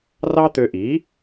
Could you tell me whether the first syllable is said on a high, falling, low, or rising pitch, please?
high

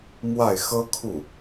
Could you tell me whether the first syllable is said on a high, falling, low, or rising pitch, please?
falling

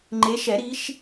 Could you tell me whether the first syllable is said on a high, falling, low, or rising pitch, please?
rising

